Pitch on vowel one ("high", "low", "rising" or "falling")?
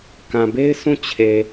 low